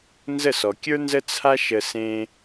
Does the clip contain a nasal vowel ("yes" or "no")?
yes